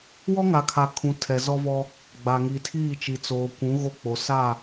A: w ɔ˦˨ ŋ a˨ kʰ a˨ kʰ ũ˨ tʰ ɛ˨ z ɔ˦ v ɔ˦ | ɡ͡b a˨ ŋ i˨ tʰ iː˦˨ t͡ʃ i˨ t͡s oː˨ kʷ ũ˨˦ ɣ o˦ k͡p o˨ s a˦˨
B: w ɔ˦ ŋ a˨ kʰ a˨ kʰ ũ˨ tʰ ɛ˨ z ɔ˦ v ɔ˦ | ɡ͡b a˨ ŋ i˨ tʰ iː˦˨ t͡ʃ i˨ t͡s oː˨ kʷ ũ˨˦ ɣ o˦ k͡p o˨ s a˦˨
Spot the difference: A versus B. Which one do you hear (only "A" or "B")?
B